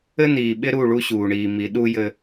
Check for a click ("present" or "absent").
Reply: absent